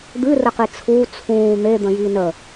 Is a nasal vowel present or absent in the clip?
present